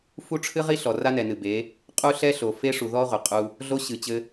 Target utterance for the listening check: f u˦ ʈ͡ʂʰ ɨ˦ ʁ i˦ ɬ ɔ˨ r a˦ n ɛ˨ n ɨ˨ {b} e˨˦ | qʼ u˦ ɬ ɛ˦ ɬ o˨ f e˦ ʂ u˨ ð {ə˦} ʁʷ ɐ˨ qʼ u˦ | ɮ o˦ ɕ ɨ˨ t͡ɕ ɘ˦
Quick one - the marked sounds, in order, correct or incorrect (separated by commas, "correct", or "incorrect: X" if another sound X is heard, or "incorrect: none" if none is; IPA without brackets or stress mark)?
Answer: correct, incorrect: ɔ˦